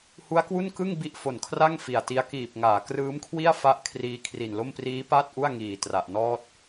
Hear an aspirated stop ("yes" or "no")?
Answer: yes